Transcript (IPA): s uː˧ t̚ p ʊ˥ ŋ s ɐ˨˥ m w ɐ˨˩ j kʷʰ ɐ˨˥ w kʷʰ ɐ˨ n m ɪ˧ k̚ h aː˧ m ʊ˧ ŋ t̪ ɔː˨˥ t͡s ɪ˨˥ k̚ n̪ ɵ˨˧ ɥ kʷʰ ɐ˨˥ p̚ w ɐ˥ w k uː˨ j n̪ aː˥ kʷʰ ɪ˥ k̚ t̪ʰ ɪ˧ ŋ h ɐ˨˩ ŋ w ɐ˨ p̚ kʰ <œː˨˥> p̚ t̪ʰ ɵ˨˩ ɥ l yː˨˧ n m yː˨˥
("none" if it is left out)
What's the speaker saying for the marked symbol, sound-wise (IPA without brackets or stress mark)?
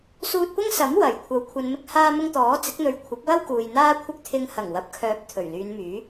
œː˨˥